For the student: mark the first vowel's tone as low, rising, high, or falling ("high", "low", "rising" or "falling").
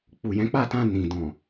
low